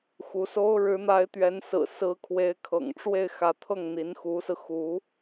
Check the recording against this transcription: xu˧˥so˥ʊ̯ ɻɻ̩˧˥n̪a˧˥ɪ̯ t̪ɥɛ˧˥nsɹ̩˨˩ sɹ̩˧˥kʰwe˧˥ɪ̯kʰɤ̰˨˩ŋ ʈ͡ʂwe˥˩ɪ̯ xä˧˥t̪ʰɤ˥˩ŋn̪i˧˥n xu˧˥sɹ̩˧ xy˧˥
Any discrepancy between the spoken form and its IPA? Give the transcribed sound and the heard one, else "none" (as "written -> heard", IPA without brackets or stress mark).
y˧˥ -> u˧˥